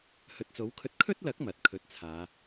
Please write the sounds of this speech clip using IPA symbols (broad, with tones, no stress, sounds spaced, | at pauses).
h ɵ˨ t̚ t͡s o˨˥ w kʰ ɵ˧ t̚ kʰ ɵ˥ t̚ l ɐ˨˥ k̚ m ɐ˨ t̚ kʰ ɵ˧ t̚ t͡sʰ aː˨˧